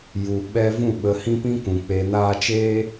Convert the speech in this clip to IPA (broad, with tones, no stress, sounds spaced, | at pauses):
j u˨ ɓ ɛ˦ v ũ˦˨ ɓ ə˨˦ h ĩ˦ p ĩ˦ k ũ˨ k͡p eː˨ n aː˧ t͡ʃ eː˦